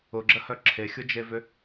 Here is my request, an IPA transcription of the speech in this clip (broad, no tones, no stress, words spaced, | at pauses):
ʊɡ͡ǁəhœ ǁʰexʲʊd͡ʒevʏ